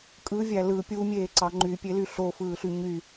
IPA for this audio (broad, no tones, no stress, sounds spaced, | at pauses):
kʼ ɯ vʲ æ l ɯ pʲ u mʲ eː ǀ ɑ ŋ͡ǃ y pʲ e l y ɬ o f ɯː ɬ y ɲ y